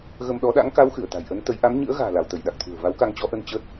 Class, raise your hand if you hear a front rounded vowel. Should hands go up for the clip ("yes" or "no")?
no